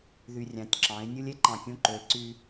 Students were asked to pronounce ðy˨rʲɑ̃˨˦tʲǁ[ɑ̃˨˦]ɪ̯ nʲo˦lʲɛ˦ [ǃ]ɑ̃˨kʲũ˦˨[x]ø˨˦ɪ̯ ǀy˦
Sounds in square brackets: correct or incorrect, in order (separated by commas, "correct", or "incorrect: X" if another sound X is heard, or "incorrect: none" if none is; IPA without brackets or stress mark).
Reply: correct, correct, incorrect: ǃ